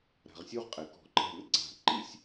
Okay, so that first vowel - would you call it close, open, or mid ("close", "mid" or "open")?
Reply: open